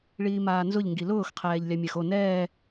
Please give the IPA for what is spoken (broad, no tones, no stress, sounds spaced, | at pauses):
ɭ iː m aː n z ʊ ʎ ŋ ɡ i l ʊː x qʰ ɛː ʎ lʲ a mʲ a x o n ɛː